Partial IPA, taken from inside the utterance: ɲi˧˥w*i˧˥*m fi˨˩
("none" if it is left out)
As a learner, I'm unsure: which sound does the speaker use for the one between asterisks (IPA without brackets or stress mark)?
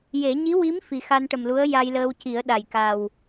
i˧˥